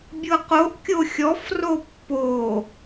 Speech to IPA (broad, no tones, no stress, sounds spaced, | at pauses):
bʲ ɤ q o ʔ kʲ o xʲ ɔ f r o pː o